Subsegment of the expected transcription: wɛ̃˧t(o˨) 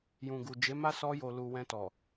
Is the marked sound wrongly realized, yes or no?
yes